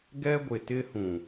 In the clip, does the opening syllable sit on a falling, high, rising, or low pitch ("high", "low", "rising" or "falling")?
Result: high